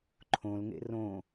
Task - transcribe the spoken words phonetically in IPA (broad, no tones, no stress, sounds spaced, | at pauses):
ǃʰ õ l ŋ ḛ r õ